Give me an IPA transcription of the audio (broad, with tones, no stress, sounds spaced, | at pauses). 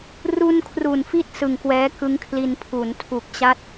r u˧ n kʰ r u˨˩ n f i˥˩ t̚ s ɯ˨˩ ŋ k w ɛː˦˥ k ɯ˦˥ ŋ kʰ l i˧ n pʰ u˩˦ n tʰ u˨˩ k̚ t͡ɕ a˥˩ t̚